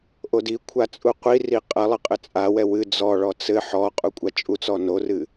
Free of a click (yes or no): yes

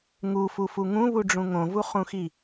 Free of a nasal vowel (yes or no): no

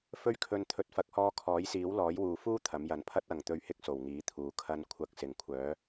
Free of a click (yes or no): yes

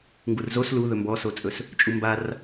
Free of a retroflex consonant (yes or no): yes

